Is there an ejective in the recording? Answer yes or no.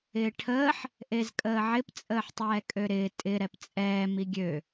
yes